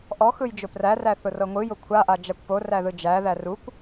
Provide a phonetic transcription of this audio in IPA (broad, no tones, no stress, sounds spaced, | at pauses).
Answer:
ʔ ɔ x ɯ j d͡ʒ ʊ p r æ r æ θ ʊ r ɤ ŋʷ ɯ j ʊ kʷʰ a ʔ a d͡ʒ a kʷ p o r æ ð ɯ d͡ʒ æ ð æ r u kʷ